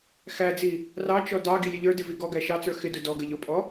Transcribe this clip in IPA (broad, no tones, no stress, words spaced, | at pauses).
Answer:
xæd͡zi | rɑt͡ʃɔ dɑ ɡilʲəʎə˞dɪ viɡɔɡæ ʃɑt͡sə˞ xɪdʊ dɔɡə ʎʊpʼɔ